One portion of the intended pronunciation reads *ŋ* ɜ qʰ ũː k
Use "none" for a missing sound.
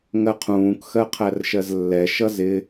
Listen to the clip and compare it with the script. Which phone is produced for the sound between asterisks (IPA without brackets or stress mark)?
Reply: ŋ